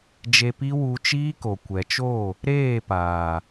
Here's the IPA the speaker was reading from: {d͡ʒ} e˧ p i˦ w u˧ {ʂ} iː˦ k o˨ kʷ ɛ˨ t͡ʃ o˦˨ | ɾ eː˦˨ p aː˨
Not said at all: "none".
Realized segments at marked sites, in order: d͡ʒ, t͡ʃ

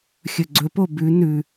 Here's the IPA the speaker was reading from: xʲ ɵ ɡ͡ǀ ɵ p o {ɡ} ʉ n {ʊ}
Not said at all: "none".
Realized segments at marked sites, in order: b, ʉ

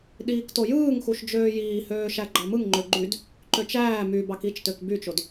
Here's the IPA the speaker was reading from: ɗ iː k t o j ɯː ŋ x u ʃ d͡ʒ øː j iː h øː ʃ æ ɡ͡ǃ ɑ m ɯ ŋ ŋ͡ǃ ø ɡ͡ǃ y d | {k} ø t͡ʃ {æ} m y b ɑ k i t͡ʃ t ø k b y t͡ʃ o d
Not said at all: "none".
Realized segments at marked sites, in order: ǃ, æː

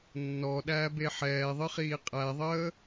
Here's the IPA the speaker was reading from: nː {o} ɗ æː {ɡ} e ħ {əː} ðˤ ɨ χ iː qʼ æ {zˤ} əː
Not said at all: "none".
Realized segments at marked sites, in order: ɔ, b, ɛː, ðˤ

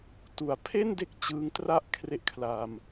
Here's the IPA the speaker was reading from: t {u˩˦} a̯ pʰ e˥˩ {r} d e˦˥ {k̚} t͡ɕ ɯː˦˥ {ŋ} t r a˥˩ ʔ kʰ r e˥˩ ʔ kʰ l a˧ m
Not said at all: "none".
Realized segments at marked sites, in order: u˩˦, n, k̚, ŋ

